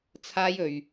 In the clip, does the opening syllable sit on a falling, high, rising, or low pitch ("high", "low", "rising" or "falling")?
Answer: high